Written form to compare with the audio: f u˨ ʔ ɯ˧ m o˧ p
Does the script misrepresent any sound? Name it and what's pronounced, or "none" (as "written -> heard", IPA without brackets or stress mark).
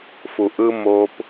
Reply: none